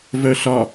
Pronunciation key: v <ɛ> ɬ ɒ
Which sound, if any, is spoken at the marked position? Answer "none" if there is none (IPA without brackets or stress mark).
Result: œ